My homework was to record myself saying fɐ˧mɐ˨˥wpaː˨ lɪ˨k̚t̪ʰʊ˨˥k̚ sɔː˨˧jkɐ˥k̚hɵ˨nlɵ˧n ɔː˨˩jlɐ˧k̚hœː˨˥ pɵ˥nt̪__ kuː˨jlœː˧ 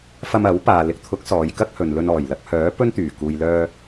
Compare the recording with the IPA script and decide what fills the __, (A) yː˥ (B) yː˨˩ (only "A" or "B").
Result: B